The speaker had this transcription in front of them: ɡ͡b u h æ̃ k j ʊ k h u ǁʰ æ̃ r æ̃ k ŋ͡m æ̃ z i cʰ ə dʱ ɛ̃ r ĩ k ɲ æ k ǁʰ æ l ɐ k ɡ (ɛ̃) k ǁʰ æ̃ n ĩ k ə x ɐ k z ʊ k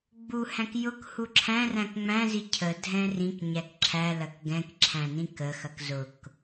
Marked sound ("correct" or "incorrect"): correct